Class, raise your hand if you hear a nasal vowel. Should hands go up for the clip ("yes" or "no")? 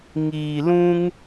yes